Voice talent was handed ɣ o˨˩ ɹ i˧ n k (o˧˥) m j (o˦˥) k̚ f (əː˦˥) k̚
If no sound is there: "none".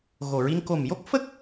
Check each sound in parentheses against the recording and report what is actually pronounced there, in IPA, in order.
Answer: o˨˩, o˦˥, ə˦˥

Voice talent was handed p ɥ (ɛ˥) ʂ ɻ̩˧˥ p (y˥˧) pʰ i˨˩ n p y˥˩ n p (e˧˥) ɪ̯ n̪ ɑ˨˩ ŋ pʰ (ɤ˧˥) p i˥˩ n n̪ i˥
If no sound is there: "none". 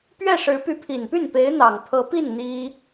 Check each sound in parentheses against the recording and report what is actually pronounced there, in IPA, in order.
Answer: ɛ˥˩, y˧˥, e˧˥, ɤ˧˥

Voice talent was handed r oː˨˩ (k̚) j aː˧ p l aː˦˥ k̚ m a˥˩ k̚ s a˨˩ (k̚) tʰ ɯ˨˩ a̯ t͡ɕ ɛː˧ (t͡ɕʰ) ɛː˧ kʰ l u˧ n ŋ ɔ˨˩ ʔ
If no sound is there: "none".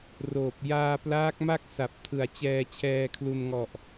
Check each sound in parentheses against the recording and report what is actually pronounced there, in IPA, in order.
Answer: p̚, p̚, t͡ɕʰ

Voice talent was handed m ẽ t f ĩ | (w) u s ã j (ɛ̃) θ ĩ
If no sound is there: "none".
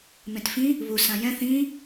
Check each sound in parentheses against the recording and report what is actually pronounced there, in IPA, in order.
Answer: β, ɛ̃

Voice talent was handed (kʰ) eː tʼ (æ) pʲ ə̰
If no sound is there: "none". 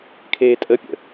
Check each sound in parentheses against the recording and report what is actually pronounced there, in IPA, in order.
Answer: kʰ, ə

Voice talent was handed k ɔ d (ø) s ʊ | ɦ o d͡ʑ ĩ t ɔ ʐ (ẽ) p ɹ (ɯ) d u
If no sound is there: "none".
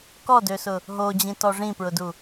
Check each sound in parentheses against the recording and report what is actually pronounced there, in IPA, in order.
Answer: ø, ĩ, ʊ

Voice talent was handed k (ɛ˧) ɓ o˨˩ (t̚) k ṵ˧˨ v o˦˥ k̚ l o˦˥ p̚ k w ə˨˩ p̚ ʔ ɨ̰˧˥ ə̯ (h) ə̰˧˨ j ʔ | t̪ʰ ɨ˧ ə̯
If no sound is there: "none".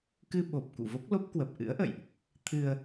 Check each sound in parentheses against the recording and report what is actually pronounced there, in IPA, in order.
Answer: ɨ˧, p̚, ʔ

